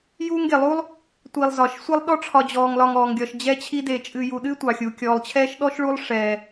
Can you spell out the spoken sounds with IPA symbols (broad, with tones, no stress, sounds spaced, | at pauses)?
j uː˦ ŋ ɡ e˩ lˠ u˥ lˠ | tʷ i˨ lˠ z ɒ˩ ʃ sʷ ɛ˦ lˠ ɗ ɔ˦ ʈ͡ʂʰ ɒ˨ d͡ʑ ɔː˨ ŋ l ɒ˨ ŋ ɔː˩ ŋ ɡʲ ɒ˨ ʃ d͡ʑ ɛ˦ t͡ɕʰ i˦ d e˨ t͡ʃʼ ɨ˨ j u˨ ɗ ɨ˥ tʷ ɑ˩ xʲ u˩ kʲ ɔː˨ lˠ t͡ɕʰ ɛː˦ ʃ ɗ ɔ˥ ʃ ɭ u˦ lˠ ʂ ɛː˨